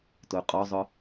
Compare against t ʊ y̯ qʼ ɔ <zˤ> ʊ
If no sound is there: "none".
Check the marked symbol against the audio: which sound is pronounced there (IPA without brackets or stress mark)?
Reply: zˤ